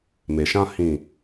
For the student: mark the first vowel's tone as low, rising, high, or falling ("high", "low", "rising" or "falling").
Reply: low